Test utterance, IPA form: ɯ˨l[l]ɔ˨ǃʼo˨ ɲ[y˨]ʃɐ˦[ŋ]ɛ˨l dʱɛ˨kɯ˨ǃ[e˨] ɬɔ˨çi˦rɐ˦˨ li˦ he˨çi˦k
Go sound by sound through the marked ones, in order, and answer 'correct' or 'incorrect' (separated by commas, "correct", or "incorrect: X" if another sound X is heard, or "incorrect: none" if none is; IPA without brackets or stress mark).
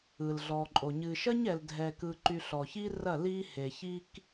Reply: incorrect: ɮ, incorrect: ɨ˨, incorrect: ɲ, incorrect: y˨